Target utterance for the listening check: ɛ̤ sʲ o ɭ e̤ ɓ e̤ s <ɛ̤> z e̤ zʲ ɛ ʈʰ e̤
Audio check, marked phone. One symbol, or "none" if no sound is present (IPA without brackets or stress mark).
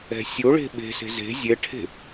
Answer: e̤